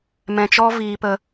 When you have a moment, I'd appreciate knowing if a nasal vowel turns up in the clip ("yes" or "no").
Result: yes